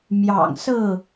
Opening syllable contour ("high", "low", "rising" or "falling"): low